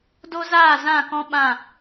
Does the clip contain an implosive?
yes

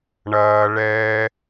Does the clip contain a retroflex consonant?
yes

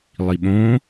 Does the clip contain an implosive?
yes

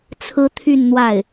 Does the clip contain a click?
no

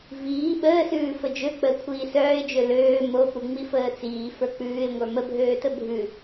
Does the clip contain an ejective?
no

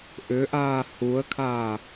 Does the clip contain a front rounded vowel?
yes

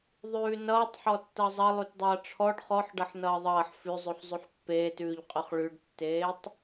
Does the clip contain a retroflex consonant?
yes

